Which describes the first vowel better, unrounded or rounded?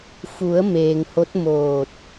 rounded